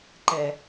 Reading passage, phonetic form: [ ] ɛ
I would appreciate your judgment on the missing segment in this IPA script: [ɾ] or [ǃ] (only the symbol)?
ǃ